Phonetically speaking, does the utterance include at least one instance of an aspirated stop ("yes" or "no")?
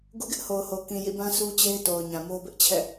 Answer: yes